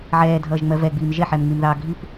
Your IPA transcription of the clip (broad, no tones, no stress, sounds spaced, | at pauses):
ʕ ɛː dʱ ʌː ʒ ŋ͡m ɜ v ɛ ɡ͡b iː m ʒ ɛ ħ ɛ m ŋ͡m i m ð ɑː ɡʱ i p